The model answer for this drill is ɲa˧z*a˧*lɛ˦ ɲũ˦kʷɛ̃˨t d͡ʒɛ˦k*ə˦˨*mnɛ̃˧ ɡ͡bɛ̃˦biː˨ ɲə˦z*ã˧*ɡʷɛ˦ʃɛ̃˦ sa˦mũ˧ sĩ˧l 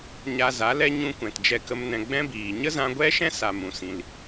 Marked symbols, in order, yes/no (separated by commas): no, no, yes